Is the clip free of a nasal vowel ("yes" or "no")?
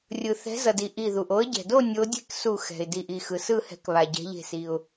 yes